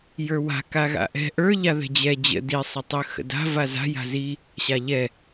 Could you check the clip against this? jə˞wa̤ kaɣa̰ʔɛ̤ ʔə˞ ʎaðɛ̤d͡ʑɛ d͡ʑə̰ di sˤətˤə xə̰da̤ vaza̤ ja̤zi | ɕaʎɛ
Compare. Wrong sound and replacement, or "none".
none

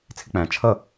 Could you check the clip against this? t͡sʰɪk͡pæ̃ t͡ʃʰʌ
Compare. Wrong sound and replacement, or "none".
none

